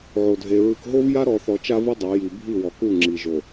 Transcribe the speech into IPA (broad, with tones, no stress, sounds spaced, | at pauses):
ʕ o˨ dʱ e˨ ɹ ɯ˨ k ɦ o˦ v j a˦ ɾ ɔ˨ θ ɔ˨ t͡ʃ a˦ v ɯ˦ dˤ a˨˦ j i˨ bʱ i˦˨ w ɔ˨ k u˦˨ ŋ͡ǁ i˨ ʒ o˨